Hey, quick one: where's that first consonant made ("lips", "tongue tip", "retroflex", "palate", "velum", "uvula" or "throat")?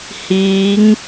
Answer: throat